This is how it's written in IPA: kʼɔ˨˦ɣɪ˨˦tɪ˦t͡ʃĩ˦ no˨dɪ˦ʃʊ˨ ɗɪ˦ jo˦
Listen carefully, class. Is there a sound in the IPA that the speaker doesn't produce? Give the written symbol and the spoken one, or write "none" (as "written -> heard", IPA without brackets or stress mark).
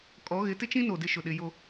none